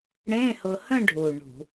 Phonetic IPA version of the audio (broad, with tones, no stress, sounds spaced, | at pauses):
ɽ ẽ˧˥˧ h ʊ˧ h ə̃˥˧ ɖʱ u˨˩ ɳ ṳ˧˩˧